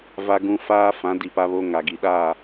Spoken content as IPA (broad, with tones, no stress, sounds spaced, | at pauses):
v a˨ ɡ ũ˨ f aː˦ f ã˨˦ d i˨ p a˦ β o˦ ŋ a˨ ɡ i˨ ɗ a˦˨